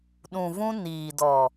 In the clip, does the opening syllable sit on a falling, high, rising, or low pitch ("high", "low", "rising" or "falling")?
low